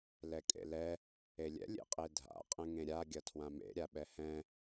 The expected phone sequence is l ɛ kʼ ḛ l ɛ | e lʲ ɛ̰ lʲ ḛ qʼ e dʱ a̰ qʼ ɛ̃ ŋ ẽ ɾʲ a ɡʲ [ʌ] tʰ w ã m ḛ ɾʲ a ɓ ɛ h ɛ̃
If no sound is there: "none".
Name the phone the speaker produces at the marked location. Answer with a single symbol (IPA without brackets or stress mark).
ʌ